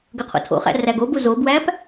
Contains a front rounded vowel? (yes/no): yes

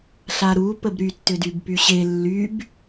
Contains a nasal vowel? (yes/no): no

